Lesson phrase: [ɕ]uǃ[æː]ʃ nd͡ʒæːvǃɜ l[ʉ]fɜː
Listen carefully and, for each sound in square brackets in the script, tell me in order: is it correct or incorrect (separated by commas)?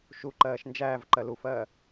incorrect, incorrect, incorrect